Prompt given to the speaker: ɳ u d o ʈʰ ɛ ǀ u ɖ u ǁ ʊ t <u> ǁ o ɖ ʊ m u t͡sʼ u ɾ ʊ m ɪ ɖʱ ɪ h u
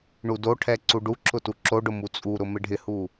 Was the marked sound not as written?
no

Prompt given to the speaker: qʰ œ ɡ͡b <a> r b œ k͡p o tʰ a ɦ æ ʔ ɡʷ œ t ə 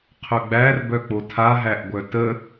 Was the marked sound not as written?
yes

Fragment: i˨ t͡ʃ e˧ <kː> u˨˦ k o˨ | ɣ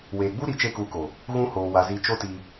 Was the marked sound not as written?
yes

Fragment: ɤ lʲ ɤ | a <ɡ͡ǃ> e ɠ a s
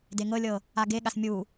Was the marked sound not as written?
yes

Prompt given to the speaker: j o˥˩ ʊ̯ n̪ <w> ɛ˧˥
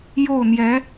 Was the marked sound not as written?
yes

